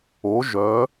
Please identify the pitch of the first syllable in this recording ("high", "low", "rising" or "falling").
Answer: rising